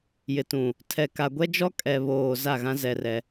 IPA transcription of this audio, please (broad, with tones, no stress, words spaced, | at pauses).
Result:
jɪ˨tũ˨ | tʰɛ˨ ka˨ɡʷɛ˦d͡ʒɔ˦ kʼɛ˨βoː˨ za˦˨ɣã˦ zɛ˦rɛ˦